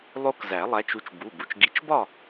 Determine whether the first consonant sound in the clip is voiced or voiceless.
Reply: voiced